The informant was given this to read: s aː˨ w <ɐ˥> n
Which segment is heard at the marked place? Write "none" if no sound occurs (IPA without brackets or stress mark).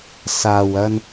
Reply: ɐ˧